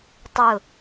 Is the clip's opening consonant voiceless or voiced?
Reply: voiceless